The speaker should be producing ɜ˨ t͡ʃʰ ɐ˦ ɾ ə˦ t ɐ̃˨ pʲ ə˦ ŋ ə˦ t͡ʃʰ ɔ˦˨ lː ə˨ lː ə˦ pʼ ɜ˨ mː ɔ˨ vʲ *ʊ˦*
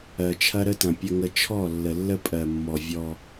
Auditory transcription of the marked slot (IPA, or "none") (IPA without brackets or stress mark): ɔ˦